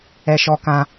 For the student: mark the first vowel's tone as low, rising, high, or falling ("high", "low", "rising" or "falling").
high